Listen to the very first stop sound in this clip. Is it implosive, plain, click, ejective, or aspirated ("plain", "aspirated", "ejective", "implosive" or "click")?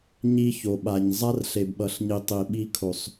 implosive